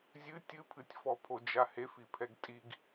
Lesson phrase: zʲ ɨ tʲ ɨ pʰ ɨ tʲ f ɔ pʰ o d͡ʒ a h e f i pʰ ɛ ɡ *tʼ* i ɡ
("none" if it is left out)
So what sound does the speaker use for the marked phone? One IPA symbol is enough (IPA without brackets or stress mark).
tʼ